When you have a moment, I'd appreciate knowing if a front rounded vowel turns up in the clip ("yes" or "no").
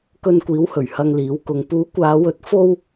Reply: no